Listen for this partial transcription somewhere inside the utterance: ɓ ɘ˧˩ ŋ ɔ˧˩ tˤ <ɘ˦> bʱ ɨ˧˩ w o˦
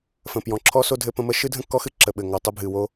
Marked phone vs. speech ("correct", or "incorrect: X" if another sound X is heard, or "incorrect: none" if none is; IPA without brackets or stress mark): correct